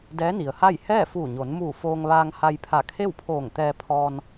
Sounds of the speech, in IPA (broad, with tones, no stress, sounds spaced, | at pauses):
d ɛː˧˥ n i˩ ə̯ h a˥˨ j h ɛː˥˨ f uː˧˩ ɲ o˩˧ n m uː˧˩ f oː˧ ŋ ʋ aː˧ ŋ h a˧ j pʰ a˧˩ kʰ e˥˨ w pʰ oː˧˩ ŋ t̪ ɛː˧ pʰ ɔː˧ n